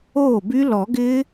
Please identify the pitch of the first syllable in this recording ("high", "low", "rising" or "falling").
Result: falling